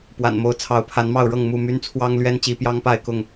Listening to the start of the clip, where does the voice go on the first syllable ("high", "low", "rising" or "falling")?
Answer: low